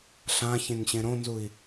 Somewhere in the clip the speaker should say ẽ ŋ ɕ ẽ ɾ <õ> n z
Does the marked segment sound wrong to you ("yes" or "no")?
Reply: no